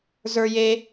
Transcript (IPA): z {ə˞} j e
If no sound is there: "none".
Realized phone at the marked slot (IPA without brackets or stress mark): ə˞